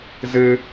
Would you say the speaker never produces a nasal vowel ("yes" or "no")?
yes